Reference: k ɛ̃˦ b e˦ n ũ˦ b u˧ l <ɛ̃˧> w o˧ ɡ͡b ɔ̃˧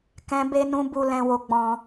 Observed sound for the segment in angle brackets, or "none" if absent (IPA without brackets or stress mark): ɛ̃˧